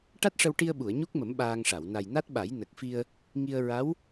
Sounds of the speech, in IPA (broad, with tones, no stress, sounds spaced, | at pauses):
ʈ a˦˥ t̚ ʂ ə˧ w ʈ i˧ ə̯ ɓ u˨˩˨ ə̯ ɲ u˦˥ k̚ m ə˨˩˦ m ɓ aː˧ ŋ ʂ a˨˩˨ w n a˨˩ j n a˦˥ t̚ ɓ a˨˩˦ j n ə˨˩ k̚ f i˧ ə̯ | ŋ i˧ ə̯ ɹ a˧˥ w